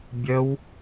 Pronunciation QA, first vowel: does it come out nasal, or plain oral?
oral